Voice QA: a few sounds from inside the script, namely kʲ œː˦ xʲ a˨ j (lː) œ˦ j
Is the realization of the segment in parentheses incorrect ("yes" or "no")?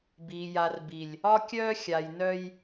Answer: yes